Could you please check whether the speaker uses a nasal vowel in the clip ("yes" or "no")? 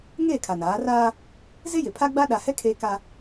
no